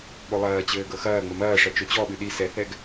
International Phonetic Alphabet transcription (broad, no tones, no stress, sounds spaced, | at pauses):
ɓ o lˠ ɐː t͡ɕ ɘː ɡ ɤ x ɐː ŋ͡m ɘ m ɐː ʂ ɐ t͡ʃ o t͡ɕ ɔ ɓ ɨ ɗ i s ɛ θ ɛ ɡ